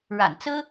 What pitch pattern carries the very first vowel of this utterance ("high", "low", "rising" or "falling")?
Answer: low